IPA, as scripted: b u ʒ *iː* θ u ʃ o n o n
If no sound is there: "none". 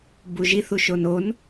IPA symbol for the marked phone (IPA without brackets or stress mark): i